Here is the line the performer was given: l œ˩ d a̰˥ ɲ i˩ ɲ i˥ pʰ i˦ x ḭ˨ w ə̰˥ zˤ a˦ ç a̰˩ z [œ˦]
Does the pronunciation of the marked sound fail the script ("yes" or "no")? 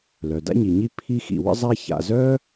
no